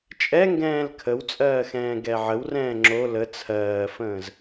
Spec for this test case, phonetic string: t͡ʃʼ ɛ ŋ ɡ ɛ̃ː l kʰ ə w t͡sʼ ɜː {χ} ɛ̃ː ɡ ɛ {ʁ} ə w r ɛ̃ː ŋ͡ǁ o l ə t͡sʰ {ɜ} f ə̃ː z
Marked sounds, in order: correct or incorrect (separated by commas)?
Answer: incorrect, incorrect, incorrect